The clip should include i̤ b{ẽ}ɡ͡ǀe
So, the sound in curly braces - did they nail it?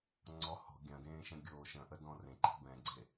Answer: no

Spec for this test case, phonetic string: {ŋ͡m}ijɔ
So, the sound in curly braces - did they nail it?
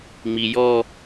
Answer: yes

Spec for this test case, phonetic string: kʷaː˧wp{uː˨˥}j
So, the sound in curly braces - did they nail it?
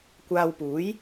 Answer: yes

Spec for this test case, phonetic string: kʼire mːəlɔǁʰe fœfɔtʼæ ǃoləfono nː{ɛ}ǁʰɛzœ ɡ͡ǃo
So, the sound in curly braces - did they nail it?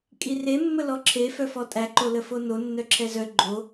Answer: no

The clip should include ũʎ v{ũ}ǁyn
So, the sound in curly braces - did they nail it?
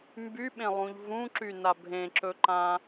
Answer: yes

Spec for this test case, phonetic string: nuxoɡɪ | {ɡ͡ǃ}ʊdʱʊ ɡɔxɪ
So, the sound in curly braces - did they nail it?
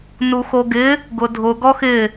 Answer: no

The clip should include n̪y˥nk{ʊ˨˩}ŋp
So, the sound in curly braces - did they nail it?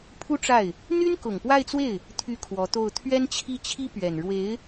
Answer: yes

